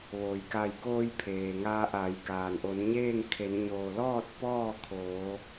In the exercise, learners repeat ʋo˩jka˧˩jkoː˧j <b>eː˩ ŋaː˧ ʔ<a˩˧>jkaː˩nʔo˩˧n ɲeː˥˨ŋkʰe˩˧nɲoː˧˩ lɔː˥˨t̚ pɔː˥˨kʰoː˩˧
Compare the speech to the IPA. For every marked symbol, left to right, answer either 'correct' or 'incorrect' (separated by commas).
incorrect, correct